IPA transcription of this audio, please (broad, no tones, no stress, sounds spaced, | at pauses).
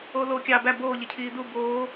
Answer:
oː l oː kʲ ɑ b æ b oː ʎ e cʰ iː d u b oː